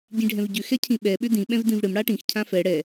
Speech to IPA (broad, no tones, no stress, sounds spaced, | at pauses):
ɟ ĩ ɖʱ ɛ̃ v ɟ ʏ x ɛ cʰ ĩ ɓ ɛ ɓ ʏ d ĩ ɓ ɛ̃ v d ĩ v ɽ ɪ m ɽ a ʈ ĩ x cʰ ã f ɛ ɽ ɛ